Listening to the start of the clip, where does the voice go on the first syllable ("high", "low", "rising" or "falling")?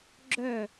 falling